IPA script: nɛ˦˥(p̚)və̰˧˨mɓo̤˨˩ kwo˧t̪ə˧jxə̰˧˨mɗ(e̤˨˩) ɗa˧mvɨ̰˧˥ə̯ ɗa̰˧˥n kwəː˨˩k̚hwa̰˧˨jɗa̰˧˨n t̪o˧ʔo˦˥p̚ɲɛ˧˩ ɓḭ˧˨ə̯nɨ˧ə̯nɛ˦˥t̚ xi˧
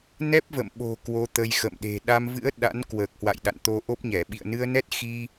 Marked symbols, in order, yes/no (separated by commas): yes, yes